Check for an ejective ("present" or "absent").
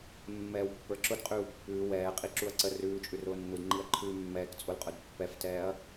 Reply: present